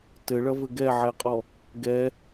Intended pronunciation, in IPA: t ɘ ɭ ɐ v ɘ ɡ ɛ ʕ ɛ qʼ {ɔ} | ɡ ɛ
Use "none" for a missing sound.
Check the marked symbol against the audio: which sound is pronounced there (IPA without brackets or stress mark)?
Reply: ɔ